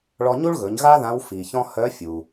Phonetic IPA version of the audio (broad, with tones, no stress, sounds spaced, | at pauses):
ɭ ɔ˧ ɲ u˥ ɭ ɣ ɵ˩˧ ɲ ɣ a˥ ð ã˧˥ w f i˩ ç ɔ̃˥ h œ˧˥ fʲ u˩